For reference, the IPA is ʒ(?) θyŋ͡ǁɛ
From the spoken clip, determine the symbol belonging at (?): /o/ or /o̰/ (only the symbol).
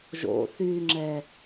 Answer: o̰